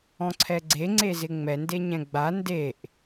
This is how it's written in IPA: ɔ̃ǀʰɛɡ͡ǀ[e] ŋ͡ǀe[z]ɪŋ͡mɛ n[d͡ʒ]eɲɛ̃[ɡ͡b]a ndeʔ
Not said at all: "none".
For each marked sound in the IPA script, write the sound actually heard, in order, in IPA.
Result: e, z, d, ɡ͡b

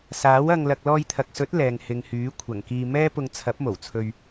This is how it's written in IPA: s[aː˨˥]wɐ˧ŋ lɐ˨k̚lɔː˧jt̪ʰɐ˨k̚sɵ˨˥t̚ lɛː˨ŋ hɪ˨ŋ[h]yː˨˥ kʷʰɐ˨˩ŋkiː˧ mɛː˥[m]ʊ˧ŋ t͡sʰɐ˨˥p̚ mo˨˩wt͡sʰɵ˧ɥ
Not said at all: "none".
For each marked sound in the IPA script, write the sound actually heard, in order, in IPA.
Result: aː˨˥, h, p

